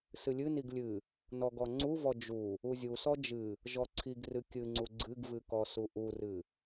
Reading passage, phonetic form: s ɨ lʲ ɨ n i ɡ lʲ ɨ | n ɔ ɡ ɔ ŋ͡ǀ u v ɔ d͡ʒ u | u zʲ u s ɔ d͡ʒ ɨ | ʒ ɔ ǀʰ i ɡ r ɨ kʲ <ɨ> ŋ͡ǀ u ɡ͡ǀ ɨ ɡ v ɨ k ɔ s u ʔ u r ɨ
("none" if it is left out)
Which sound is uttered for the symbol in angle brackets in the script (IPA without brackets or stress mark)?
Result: ɨ